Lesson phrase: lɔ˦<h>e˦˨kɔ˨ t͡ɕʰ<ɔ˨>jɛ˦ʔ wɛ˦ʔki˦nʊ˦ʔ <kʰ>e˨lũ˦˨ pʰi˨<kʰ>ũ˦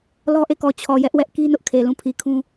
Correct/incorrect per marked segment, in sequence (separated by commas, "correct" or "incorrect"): incorrect, correct, correct, correct